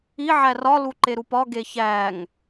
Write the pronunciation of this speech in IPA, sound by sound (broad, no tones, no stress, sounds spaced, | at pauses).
i ʕ æ r ɒ l u ǃ e ɾ u p ɒ ɡ e ç æ ŋ